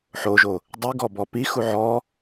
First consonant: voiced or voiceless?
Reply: voiceless